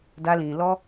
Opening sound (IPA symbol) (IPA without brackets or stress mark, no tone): d